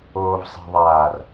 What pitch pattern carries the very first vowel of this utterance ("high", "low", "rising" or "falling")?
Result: low